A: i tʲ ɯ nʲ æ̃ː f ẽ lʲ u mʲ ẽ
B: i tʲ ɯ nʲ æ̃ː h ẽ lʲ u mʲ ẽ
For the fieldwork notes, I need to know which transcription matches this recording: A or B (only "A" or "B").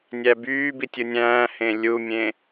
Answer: B